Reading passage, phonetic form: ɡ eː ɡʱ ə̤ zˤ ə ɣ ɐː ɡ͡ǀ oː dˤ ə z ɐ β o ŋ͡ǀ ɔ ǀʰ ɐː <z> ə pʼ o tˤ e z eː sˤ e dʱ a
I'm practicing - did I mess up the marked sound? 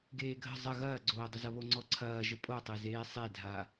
yes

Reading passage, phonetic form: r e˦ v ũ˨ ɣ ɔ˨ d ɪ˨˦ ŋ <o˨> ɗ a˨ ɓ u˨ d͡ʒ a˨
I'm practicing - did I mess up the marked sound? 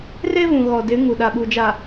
yes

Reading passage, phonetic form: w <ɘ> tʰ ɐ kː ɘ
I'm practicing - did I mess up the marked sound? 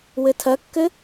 no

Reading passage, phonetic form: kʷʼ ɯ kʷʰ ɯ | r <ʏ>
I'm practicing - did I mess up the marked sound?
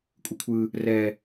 yes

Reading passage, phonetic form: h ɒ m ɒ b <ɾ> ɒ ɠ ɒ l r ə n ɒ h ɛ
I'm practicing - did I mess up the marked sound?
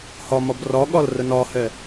yes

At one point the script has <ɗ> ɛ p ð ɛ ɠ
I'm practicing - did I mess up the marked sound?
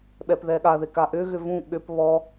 yes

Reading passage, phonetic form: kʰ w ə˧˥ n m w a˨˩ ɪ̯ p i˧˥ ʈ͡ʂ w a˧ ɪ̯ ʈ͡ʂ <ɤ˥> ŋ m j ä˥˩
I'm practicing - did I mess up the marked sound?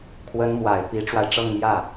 yes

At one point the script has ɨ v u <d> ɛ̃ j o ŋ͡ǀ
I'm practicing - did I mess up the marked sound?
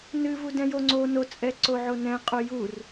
no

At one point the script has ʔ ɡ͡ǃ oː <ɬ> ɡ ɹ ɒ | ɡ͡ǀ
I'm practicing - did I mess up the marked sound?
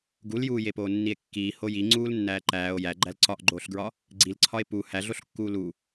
no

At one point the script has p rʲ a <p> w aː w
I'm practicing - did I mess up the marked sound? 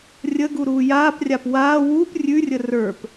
no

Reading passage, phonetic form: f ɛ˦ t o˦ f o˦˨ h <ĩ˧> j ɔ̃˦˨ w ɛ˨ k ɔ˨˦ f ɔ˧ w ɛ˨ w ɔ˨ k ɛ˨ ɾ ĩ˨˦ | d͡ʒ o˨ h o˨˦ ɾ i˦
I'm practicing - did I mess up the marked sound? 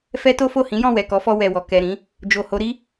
yes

